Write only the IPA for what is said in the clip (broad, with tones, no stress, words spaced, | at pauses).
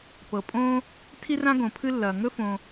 pɤ˩pʼõː˦ | tʰi˦rã˦ ɡõ˩pʰɨ˦ lːɐː˩ŋɵ˥fõ˨